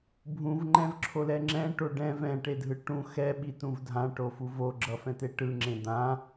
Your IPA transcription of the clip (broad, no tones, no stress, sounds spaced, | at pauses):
bʱ ũ v ŋ͡ǃ ɛ̃ v ǁʰ o l ɛ ŋ͡ǁ ɛ̃ ʈ o ɖ ɛ̃ v ɛ̃ ʈ e dʱ ɯ ʈ ũ x ɛ ɓ i t ũ v dʱ ã ʈ o f u v o ɡ͡ǁ ʌ f ɛ̃ t e ʈ ɯ ŋ͡ǁ ẽ d̪ ã